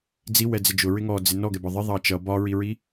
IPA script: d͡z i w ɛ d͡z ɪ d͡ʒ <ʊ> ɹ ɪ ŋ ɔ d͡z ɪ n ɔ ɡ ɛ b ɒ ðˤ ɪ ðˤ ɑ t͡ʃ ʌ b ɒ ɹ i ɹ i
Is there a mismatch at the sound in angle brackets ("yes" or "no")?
no